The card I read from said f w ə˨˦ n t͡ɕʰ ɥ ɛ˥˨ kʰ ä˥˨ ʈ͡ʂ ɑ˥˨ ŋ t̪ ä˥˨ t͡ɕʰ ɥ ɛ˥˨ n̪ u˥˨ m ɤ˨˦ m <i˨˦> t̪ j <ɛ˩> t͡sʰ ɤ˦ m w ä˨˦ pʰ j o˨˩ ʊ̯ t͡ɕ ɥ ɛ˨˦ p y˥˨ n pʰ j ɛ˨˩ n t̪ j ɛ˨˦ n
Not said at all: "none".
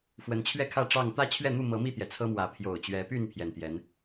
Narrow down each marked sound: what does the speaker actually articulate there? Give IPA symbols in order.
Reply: i˥˨, ɛ˩

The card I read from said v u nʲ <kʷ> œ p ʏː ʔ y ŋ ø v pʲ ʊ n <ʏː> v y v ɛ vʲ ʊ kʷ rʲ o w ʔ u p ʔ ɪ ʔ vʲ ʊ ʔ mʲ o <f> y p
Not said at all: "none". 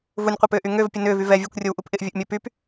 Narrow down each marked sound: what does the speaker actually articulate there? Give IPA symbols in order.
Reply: qʷ, ʏː, p

